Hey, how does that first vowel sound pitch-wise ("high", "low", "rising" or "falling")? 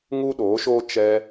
high